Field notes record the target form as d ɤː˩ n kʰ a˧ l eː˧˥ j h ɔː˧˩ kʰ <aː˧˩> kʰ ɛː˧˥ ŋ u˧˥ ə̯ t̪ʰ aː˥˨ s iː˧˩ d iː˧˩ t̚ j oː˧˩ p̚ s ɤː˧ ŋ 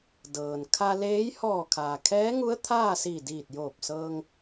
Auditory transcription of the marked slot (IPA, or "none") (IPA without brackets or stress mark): aː˩